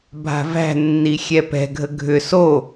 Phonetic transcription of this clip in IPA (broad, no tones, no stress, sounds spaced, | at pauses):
bʱ a̤ v æ̤ nː i xʲ ɛ p ɛ̤ ɡʱ ə ɡʱ ʏ s o